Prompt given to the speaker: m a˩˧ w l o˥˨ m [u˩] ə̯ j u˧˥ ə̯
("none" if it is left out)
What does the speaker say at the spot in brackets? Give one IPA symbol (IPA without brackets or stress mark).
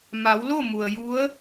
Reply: u˩